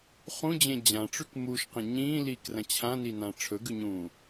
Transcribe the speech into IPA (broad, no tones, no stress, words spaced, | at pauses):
χũd͡ʑẽ d͡ʑãʈ͡ʂʉk muʃqẽ ɲĩːliːkrɐ̃ t͡ɕʰãninã ʈ͡ʂʰɵɡʉɲũː